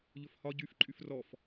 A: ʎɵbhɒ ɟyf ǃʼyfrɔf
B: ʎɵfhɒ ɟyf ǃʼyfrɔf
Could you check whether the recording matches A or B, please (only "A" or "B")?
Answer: B